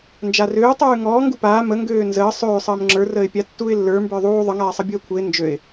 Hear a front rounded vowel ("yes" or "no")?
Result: yes